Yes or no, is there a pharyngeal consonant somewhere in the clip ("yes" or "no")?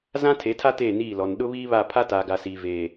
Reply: no